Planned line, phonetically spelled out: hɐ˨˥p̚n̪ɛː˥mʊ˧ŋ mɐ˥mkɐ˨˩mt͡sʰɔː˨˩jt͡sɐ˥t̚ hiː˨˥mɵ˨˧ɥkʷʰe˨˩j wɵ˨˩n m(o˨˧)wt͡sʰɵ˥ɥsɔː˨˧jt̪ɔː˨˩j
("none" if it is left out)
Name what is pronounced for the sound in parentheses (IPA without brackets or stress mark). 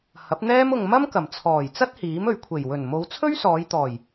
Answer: o˨˧